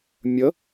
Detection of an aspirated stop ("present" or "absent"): absent